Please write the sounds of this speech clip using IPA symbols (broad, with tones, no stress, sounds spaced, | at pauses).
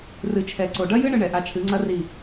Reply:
r ɨ˨ t͡ʃʰ ɛ˨ ǀ o˨ ɖ ɐ˦ j ɨ˦ ɳ ɨ˧ ɳ ɛ˨ ʔ a˧ t͡ʃʰ ɨ˨˦ ŋ͡ǀ ɐ˦ r i˦˨